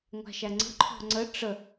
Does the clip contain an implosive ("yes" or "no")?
no